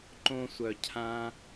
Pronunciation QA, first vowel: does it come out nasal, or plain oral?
nasal